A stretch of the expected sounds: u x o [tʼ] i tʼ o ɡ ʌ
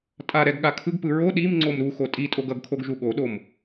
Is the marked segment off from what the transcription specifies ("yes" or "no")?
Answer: no